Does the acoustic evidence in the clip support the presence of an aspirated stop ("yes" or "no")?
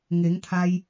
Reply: yes